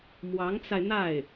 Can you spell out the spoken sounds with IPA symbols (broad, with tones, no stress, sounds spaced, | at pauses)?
m w ɑ˧˥ ŋ t͡s a˧ ɪ̯ n̪ a˥˩ ɪ̯